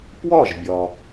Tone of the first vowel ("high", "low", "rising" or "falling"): falling